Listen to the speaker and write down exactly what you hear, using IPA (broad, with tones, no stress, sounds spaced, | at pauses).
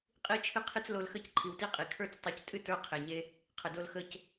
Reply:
qʼ i˧ t͡ʃʰ ɨ˧ qʰ ɨ˧ t͡s l o˧ l x ə˦˨ c ǃʰ i˨ w t i˦ qʼ i˨ kʰ ə˞˦ t͡s tˤ ə˞˧ c tʼ ɨ˦ t ə˞˦ qʰ e˨ ɲ e˧ | qʰ ə˨ d o˧ l x ə˧ c